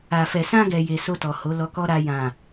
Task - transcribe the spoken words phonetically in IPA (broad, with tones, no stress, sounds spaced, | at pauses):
a˨ f ɛ˨ s ã˧ ɡ ɛ˨ j e˨ s o˧ t ɔ˨ h o˨˦ l ɔ˧ k ɔ˦ ɾ a˧ j ã˨